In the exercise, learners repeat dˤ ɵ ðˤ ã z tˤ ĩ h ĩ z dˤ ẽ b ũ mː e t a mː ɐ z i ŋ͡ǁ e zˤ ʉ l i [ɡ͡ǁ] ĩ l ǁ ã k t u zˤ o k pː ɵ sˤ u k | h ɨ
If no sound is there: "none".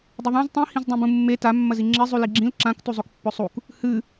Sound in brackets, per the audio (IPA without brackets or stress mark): ɡ͡ǁ